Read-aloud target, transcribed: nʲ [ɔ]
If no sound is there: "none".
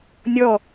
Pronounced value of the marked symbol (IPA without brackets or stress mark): ɔ